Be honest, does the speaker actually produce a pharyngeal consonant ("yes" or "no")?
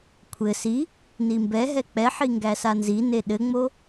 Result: yes